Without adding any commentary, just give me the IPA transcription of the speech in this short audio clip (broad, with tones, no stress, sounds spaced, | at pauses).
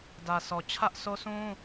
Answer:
d ä˨ s ɔ˨ t͡ɕʰ ä˦ ʔ s o˦ s ũ˦